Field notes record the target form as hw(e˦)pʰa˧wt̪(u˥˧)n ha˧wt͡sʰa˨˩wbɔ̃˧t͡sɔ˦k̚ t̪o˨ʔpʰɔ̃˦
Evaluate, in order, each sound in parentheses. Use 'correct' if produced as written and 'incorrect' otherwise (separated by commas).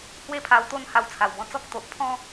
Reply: incorrect, incorrect